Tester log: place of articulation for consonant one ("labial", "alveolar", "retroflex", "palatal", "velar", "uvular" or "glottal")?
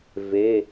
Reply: labial